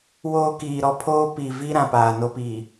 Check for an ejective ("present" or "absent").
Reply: absent